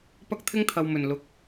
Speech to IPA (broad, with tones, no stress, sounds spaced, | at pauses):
p ɐ˥ k̚ t̪ʰ ɪ˥ ŋ t̪ʰ ɐ˨ w m ɵ˨˩ n l ʊ˨˥ k̚